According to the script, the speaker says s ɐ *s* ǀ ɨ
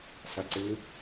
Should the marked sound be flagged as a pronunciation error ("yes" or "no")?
yes